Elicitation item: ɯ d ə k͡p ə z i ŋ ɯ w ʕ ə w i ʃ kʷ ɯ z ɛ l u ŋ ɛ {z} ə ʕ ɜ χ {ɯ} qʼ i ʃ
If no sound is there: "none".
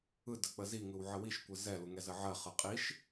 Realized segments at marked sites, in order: z, ɯ

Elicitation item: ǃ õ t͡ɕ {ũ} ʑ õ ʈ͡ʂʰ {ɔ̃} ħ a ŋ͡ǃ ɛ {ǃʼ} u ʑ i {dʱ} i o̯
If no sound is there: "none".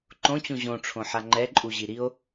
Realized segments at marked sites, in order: ũ, õ, ǃʼ, ɾ

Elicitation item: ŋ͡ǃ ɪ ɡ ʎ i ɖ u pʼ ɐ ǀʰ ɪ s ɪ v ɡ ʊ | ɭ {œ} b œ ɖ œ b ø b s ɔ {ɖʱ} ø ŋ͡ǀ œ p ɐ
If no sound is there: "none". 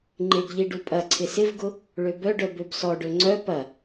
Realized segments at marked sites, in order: ø, ɖ

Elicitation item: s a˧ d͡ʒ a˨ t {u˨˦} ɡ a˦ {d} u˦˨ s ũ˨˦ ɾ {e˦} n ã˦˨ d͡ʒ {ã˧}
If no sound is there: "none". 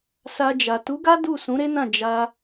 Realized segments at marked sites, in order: u˨˦, d, e˦, a˧

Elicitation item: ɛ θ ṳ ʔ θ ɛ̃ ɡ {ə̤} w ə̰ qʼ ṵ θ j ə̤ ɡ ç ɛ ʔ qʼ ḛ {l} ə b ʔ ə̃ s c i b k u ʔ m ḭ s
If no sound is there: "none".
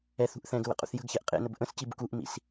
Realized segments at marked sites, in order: ə̤, n

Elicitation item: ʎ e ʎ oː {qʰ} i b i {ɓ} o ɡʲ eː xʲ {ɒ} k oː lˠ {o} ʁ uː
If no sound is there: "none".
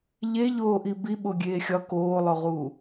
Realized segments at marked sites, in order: ʔ, ɓ, ɒ, o

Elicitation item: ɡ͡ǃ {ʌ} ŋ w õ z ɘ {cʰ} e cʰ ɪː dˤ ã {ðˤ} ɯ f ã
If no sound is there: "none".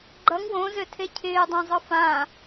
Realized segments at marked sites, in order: ʌ, tʰ, zˤ

